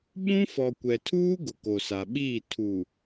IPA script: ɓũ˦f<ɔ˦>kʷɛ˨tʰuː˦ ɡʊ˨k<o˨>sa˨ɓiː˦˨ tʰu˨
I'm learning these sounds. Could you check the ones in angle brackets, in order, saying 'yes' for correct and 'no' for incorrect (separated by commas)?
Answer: no, yes